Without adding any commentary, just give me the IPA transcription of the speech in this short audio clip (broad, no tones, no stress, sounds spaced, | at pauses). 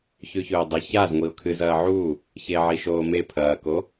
ç ʉ ç ɵː dˤ ɐ ç a z ŋʷ i ʊ̯ kʰ ɨ z ɐː ʕ u | ç e ʕ i ʃ oː m e pʰ ɐː k o